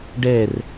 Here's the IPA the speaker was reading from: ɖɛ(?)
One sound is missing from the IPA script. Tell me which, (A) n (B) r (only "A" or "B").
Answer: B